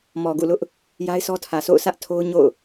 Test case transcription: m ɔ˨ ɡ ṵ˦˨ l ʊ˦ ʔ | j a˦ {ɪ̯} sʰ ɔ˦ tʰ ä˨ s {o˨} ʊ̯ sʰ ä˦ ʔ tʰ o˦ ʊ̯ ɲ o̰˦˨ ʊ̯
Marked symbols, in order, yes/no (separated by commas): yes, no